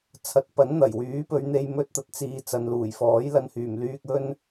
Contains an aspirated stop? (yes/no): yes